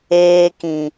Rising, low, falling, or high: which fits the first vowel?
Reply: high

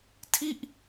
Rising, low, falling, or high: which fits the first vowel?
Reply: falling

